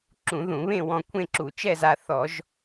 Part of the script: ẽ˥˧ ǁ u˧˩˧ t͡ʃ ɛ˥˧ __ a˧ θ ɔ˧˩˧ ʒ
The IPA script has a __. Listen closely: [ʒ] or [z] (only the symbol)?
z